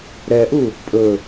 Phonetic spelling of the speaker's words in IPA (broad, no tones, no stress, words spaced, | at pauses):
ɾɛʔu | pʼɵ